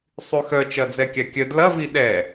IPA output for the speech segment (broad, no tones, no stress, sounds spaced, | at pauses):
sˤ y x œ t͡ʃ ɐ d͡z ɛ kʲ a kʲ œ d l ɐ v i ɗ ɛ